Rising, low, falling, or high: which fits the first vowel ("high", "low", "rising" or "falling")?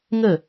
falling